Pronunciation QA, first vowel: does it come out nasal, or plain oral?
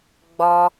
oral